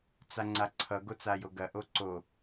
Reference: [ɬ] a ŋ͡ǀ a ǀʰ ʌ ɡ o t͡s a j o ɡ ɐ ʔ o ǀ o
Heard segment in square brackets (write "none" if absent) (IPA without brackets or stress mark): t͡s